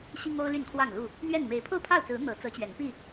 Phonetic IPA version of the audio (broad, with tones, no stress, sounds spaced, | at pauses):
ɕ i˦ ŋ o˦ ʊ̯ l y˥˨ n kʰ w ɑ˥˨ ŋ l u˥˨ | n̪ ɥ ɛ˥˨ n m e˨˦ ɪ̯ pʰ o˥˨ ʊ̯ pʰ ɑ˥˨ ʊ̯ t͡s ɹ̩˨˦ n̪ ɤ˨˦ t͡s ɤ˨˦ t͡ɕ ɥ ɛ˨˦ n p i˥˨